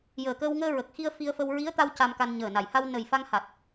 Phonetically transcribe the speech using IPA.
jəː˨˩kəː˧wŋəː˧ ɹə˨˩k̚xi˧ə̯ fi˧ə̯fə˧w ɹi˧˥ə̯t̪a˧w ca˧mka˧n ɲəː˨˩na˨˩jha˧w nə˨˩j fa˧ŋha˨˩t̚

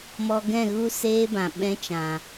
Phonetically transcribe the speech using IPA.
mɔ˧ɡɛ̃˦˨ɣu˦ seː˦bã˨ ɓɛ̃˦t͡ʃã˨

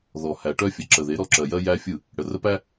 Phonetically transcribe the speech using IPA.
ðɔ˨ hæ˨ ʈœ˦fʲə˨ǁə˨ ðe˨˦ɾɔ˦ǁɜ˨jɜ˦ jæ˦fʲɯ˦˨ | ɽə˨rə˦pæ˦

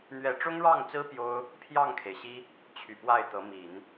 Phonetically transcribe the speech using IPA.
n̪ɥɛ˧˥ ʈ͡ʂʊ˥ŋɻɑ˥˩ŋt͡sɹ̩˥ pjo˥ʊ̯ | pʰjɑ˥˩ŋkʰe˩ɪ̯ɕi˥ | t͡ɕʰy˨˩pwa˥˩ɪ̯t̪ɤ˧˥ mi˨˩˦n

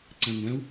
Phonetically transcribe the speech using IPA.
ǀæ̃ŋʷæ̃u̯

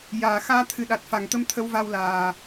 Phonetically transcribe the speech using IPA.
jaː˨˩ xaː˧ t̪ʰɨ˨˩ɗa˨˩t̚ fa˨˩ŋt̪ə˧m t̪ʰə˧˥wva˧wlaː˨˩

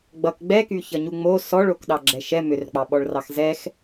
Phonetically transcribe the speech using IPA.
ɡ͡bʌk ɡ͡bɛkyçʌɲu ŋ͡mo sɔɭokɗɑɡ͡ǁɛ ʃɛ mʏrk͡pɑɓɔɭrɑx zɛx

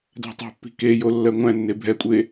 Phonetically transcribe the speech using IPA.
dæ̤tˤe̤pːi̤ kejo lːɜŋʷæ̃nːe bʱɛkʷʼe

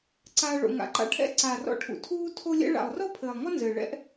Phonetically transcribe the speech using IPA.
ǀaː˧ ɭo̰˨ŋa̰˨ǃa̰˧ʈʰɛ̰˧ ǀaː˨rɔ̰˧ʈʰṵ˨ tʰuː˧tʰo˧lʲɛ̰˧ɭa̰˨lˠ rɔ˦pʰɘː˨lˠŋɔ˦ nzɘː˨ɭɛ̰˦ʔ

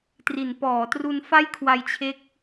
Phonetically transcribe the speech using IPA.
tri˩˦npɔː˩˦tru˧n fa˥˩jkʰwa˧jt͡ɕʰe˦˥k̚

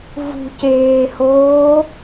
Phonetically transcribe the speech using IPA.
vṳceːhoː

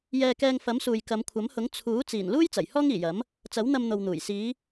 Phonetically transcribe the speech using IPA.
jɛː˧kɛː˧ŋfɐ˨˥msuː˨j kɐ˨˧mkʷʰɐ˨˥mhʊ˨˥ŋ t͡sʰuː˨˥ t͡siː˨˩nluː˥j t͡sɐ˨˩j hɔː˥ŋiː˨˩jɐ˨˥m | t͡sɐ˨˥wn̪ɐ˧mn̪o˨wn̪uː˨˩j siː˨˧

